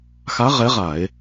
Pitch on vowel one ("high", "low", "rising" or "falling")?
rising